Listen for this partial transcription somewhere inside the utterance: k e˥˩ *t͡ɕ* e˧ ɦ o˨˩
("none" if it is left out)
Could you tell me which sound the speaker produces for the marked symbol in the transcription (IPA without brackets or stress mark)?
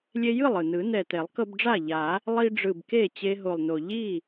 t͡ɕ